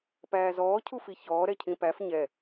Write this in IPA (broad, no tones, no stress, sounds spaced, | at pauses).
p æː z ɔː cʰ u f i ç ɔː ɾ ɛ cʰ ĩ p æ f ɲ ɛ